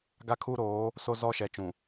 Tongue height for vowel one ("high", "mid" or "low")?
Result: low